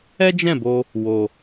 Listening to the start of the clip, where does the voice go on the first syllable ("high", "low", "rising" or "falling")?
high